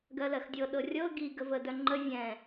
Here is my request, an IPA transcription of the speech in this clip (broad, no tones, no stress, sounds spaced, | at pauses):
ɡ ɜ l ɜ x dʲ ɤ ɗ ɤ rʲ ɤ ɡ i ɡ ə v ə d œ ŋ͡ǃ ə vʲ ɛ̃